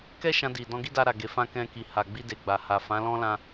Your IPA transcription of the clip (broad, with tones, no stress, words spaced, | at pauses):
kɛ˦ʃã˧di˨ dɔ̃˧ɡi˦da˧ɾa˨ ɡe˨fã˧ kɛ̃˧ki˨ha˨ ɡ͡bi˧de˨ ɡ͡ba˨ha˨ fã˨˦lɔ̃˦lã˧